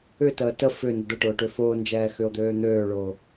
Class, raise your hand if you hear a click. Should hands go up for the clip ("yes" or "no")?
no